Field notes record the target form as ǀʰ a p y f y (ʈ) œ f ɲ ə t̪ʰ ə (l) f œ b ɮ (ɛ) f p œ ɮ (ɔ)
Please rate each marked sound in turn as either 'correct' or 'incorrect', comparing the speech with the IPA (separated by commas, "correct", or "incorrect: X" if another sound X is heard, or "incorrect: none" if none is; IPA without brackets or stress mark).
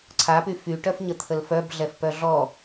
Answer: correct, correct, correct, correct